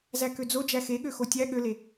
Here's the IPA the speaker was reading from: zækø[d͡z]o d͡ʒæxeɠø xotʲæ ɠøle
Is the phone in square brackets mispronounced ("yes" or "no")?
no